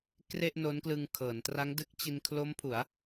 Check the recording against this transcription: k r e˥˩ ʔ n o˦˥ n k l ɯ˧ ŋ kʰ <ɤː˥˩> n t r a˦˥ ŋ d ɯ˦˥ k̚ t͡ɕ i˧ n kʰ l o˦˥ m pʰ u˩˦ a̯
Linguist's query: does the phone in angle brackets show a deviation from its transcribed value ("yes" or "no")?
yes